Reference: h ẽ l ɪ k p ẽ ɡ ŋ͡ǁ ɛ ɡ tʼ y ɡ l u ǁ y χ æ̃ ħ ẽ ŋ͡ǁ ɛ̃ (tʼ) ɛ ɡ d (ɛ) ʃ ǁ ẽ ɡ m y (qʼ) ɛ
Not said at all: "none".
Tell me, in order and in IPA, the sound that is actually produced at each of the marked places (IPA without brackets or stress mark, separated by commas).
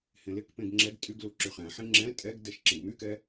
tʼ, ɛ, k